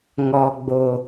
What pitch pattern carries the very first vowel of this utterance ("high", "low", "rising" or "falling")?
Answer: low